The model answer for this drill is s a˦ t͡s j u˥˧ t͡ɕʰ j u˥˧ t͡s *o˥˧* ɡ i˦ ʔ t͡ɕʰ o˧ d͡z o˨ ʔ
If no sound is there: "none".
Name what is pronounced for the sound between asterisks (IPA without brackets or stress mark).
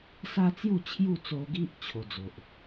o˧